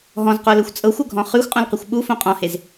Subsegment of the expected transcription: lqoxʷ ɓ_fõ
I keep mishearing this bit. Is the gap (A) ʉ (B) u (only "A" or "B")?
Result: B